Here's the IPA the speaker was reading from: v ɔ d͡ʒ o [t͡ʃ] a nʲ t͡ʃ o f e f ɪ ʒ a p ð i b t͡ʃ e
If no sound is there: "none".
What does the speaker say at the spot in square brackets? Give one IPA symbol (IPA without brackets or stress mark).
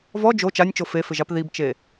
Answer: t͡ʃ